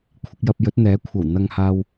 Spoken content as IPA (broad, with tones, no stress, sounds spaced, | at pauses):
kʷʰ ɪ˧ k̚ j ɐ˧ p̚ j ɵ˨˥ t̚ n̪ ɛː˨˥ kʷʰ ɐ˨˩ w n̪ ɐ˨ ŋ h aː˨ w